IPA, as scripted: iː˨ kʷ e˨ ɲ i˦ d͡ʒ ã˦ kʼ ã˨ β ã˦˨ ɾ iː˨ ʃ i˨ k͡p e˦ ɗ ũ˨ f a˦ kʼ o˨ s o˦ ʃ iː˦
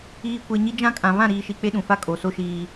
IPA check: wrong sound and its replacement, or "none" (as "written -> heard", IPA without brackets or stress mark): none